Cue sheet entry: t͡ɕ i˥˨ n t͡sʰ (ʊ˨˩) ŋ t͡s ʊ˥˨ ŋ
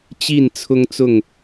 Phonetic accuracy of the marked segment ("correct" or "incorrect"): incorrect